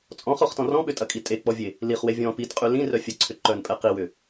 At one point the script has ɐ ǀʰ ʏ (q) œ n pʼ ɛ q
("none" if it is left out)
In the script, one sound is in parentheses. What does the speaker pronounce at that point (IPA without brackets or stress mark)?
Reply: ǃ